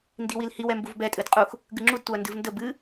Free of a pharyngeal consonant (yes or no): yes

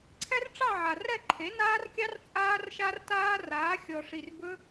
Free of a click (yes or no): no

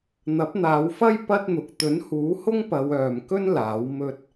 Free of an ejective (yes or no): yes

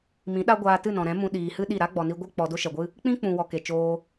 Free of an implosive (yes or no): no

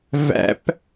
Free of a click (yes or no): yes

